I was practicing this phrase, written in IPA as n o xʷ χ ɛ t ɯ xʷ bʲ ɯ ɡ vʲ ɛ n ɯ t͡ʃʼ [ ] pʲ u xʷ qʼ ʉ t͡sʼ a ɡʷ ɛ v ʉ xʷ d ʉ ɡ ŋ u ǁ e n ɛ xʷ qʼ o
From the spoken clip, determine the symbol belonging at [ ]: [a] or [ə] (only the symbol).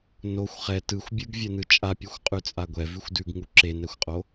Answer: a